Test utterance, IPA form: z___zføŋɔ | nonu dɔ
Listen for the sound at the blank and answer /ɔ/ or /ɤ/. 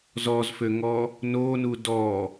ɔ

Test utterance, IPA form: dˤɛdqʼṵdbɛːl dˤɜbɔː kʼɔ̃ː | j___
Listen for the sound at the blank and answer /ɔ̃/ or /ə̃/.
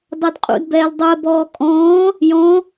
ɔ̃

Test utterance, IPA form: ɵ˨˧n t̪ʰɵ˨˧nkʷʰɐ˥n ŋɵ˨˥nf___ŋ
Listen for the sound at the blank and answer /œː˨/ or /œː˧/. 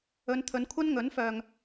œː˨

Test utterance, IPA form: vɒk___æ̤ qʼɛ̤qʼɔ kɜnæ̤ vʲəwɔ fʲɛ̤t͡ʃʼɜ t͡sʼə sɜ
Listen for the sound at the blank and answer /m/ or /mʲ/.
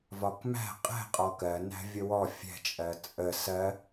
m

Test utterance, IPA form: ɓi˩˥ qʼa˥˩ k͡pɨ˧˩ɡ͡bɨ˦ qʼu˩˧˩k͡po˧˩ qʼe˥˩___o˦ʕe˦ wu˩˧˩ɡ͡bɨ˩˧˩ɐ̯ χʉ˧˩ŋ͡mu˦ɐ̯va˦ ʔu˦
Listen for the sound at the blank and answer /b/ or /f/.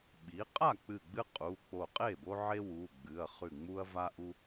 b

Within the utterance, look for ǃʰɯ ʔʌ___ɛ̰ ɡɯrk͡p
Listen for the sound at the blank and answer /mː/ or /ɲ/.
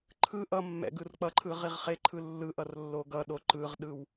mː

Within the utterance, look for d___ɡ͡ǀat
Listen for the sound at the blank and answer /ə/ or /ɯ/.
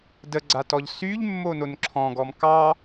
ə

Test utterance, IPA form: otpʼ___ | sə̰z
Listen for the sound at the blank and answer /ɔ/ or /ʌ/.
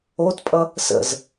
ʌ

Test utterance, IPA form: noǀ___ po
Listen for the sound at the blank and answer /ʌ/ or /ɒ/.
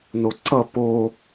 ʌ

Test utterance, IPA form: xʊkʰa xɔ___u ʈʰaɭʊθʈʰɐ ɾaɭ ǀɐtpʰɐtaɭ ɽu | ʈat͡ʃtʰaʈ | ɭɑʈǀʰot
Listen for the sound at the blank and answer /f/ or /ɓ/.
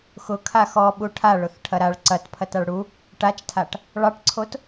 ɓ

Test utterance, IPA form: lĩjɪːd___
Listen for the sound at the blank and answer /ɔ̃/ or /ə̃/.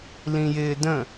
ə̃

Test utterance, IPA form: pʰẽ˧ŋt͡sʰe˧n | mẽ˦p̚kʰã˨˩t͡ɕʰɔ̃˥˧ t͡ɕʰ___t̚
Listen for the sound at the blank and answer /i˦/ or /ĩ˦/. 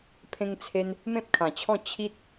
i˦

